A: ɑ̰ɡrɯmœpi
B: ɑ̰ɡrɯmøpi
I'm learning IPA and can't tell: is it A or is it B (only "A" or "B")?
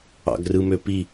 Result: B